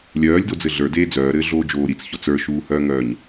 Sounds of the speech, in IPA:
lʲ œː lʲ d o d͡z ɘ ɮ ə˞ d eː d͡z œː ɾ ɘː ɮ oː d͡ʒ oː ɾ i t͡s ç ɔ t͡s ə˞ ʃ uː h œː ŋ œː ɲ

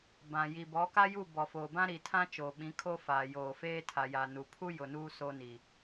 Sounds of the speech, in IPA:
b ã˨ j i˨ b ɔ˨˦ k a˦ j u˦˨ b ɔ˨ f oː˨ b ã˦ ɾ i˨ tʰ ã˦ t͡ʃ oː˨ ɓ ĩ˨˦ kʰ o˦ f aː˨ j oː˨ f eː˦ tʰ a˨ j a˨ n u˨ pʰ u˦ j ʊ˨ n uː˦ s o˦ n i˨

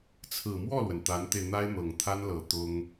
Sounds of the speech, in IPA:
t͡sʰ ɹ̩˨˩ m w ɔ˥˩ l w ə˩ n t̪ a˧˥ n t̪ e˧ ɪ̯ n̪ a˥ ɪ̯ n̪ ɤ˨˩ ŋ t̪ʰ a˥ n l ɤ˨˩ t̪ ʊ˥ ŋ

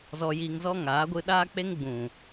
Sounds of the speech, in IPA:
z ɔ˧ j iː˧ ŋ z ɔ˦ ŋ aː˨˦ ɡʷ ɨ˧ ɗ aː˦ k͡p e˦ ŋ ɡ͡b ũ˨

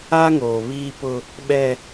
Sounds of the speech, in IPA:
a˦ ŋ oː˨ β iː˦ p ʊ˦ | ɓ ɛ˦

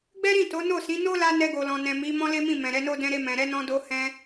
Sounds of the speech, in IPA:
ɡ͡b ɛ˦ ɾ ĩ˦˨ t o˨˦ n o˦˨ s ĩ˨˦ n o˦ l a˧ n ɛ˧ ɡ o˨ l ɔ̃˨ n ɛ̃˨ m i˨˦ m ɔ̃˦ l e˦ m ĩ˦˨ m ɛ̃˨ ɾ ɛ˨˦ n o˦ d ɛ̃˧ ɾ e˧ m ɛ̃˨ ɾ ɛ˨˦ n ɔ̃˧ d o˧ h ɛ̃˧

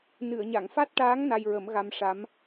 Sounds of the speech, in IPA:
n ɨ˨˩˨ ə̯ ɲ a˨˩˨ ŋ f a˦˥ t̚ ʈ aː˧˥ ŋ n a˧ j ɹ ə˨˩˦ m ɣ a˧ m ʂ a˧˥ m

